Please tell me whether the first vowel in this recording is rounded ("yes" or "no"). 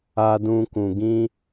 no